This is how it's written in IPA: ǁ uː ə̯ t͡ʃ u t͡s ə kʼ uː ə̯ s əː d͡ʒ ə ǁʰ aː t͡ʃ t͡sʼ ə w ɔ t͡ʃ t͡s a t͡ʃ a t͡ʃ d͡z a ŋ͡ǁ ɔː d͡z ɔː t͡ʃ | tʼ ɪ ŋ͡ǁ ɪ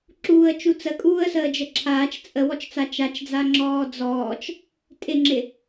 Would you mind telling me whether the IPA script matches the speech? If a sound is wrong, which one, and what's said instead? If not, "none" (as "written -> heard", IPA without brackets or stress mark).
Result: none